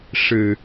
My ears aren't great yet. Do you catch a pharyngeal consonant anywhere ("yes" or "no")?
no